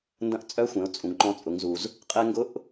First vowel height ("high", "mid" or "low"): low